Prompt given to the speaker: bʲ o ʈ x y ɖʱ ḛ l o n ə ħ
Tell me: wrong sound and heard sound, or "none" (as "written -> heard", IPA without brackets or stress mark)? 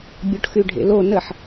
none